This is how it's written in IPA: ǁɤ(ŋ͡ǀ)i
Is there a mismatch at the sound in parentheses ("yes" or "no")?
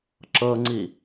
no